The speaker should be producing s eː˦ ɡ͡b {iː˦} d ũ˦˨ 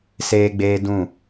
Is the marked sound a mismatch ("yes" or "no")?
yes